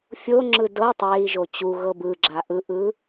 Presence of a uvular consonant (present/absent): absent